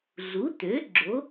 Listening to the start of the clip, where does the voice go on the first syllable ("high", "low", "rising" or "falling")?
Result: rising